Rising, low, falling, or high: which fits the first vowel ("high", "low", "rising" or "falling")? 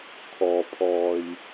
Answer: low